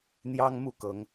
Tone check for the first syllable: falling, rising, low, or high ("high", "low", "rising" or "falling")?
high